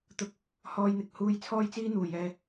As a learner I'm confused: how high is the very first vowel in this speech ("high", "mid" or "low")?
high